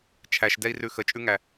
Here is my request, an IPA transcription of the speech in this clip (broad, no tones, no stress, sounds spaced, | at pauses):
t͡ʃʰ æ ʃ d ɛ i̯ r ʉ x ə t͡ʃʼ ʉ ŋ æ